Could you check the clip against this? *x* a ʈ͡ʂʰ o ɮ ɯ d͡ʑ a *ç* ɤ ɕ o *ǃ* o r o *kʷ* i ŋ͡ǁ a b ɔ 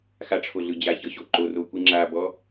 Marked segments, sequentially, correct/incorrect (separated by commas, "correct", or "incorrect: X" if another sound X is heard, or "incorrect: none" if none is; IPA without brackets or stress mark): correct, correct, correct, correct